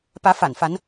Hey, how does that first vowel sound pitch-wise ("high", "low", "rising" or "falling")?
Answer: rising